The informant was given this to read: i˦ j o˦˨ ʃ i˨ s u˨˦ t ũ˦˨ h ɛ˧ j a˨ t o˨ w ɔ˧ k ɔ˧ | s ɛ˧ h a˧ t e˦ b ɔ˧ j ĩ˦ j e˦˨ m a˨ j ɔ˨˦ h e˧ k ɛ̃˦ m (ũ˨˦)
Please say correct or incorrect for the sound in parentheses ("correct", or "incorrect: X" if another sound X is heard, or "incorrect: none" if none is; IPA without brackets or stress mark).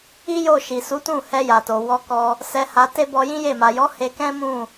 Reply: incorrect: ũ˦˨